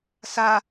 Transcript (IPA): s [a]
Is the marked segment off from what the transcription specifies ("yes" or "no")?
no